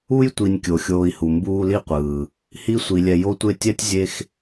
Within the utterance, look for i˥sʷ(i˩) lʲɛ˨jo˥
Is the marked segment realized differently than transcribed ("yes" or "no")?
no